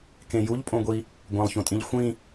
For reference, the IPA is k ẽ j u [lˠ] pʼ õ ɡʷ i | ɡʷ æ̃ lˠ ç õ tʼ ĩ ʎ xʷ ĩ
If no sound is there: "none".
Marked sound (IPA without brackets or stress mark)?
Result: ʎ